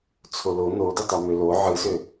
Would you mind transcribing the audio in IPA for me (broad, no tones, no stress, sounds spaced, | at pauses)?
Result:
t͡sʰ o l o n o d u tˤ o m ø l o ʕ ɯ s ø